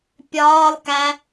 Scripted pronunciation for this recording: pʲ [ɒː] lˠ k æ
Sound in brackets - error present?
no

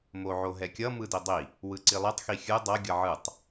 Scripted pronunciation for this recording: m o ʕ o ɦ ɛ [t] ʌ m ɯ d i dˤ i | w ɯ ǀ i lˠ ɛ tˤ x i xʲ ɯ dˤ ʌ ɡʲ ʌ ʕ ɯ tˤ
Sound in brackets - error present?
yes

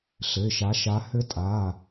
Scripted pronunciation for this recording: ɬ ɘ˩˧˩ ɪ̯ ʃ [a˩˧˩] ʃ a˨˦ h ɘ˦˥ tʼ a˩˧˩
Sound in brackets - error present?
yes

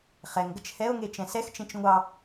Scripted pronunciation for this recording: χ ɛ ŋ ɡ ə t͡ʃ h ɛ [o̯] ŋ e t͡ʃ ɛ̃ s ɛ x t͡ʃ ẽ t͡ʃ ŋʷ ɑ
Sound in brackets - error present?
no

